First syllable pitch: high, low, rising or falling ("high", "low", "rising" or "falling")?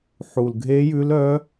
low